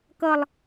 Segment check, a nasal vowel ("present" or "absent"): absent